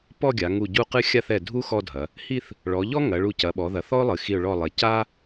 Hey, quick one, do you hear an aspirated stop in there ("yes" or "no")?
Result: no